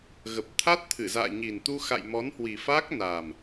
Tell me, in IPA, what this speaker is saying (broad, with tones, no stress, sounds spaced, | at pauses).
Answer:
ɣ ə˨˩ p̚ t̪ʰ a˦˥ t̚ t̪ʰ ɨ˧˩ z a̰ː˧˨ ɲ i˨˩ n t̪ u˧ x a̰˧˨ j m ɔ˨˦ n h w i˨˩ f aː˦˥ k̚ n aː˨˩ m